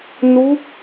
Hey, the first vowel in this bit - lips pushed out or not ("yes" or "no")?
yes